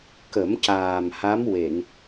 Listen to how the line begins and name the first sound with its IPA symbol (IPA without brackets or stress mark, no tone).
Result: k